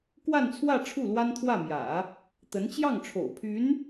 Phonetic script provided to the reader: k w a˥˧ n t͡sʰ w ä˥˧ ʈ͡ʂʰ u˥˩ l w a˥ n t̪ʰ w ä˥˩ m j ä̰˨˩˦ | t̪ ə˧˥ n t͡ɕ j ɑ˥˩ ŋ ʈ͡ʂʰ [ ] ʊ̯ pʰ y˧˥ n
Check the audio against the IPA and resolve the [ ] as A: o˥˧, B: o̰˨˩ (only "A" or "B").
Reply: B